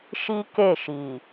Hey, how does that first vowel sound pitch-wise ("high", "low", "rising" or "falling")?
high